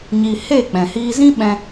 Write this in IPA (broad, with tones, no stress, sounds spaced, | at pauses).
ɲ iː˧ h e˦˨ k͡p ɛ̃˨ h iː˧ z ĩ˦ ɓ ɛ̃˦